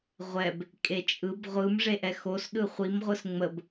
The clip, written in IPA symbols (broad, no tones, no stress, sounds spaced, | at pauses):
ʁʷ ɛ b | kʼ e t͡ʃʼ ɯ b ʁʷ ɯ m ʐ e ʔ ɛ x o s ɗ ɯ χʷ i m ʁʷ ɯ s ŋ͡m ə b